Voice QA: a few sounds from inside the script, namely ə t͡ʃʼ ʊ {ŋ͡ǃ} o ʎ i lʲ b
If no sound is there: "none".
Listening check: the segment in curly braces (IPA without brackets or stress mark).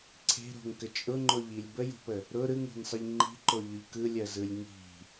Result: ŋ͡ǃ